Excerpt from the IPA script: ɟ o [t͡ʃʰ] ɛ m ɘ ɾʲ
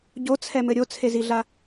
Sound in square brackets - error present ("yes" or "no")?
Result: yes